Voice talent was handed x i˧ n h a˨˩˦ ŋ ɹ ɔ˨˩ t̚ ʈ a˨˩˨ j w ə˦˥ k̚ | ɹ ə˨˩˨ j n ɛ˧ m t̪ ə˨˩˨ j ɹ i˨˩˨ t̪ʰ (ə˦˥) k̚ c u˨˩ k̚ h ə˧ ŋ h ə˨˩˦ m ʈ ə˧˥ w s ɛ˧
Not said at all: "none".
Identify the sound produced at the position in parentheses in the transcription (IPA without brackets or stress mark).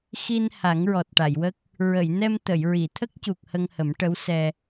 ə˦˥